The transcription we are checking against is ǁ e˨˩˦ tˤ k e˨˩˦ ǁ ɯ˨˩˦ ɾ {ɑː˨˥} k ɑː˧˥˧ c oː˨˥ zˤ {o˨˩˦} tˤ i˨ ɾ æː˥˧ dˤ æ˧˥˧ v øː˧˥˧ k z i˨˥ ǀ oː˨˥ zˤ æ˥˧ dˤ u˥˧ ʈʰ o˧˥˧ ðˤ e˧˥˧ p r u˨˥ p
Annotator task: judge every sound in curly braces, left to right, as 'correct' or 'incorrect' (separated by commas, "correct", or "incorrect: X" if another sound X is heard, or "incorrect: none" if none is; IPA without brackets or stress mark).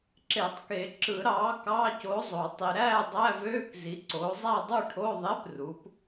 correct, correct